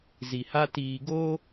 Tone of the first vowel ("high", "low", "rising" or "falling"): low